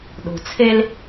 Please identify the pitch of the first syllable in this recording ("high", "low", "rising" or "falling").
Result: low